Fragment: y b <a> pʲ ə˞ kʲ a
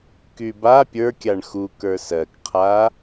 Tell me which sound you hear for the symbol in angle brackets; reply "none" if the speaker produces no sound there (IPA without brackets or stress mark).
a